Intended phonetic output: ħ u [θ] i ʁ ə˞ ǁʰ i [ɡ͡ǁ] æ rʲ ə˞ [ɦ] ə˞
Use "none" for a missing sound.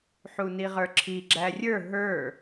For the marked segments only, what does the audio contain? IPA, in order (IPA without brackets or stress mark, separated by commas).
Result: n, ɡ͡ǁ, ɦ